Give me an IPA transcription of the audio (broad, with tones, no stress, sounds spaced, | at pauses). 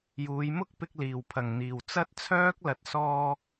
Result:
j uː˨˧ j m ʊ˥ k̚ p ɪ˧ k̚ l iː˨˩ w pʰ ɐ˨˩ ŋ n̪ iː˨˩ w t͡s ɐ˥ t̚ t͡sʰ œː˥ k̚ l ɐ˨ t̚ s ɔː˧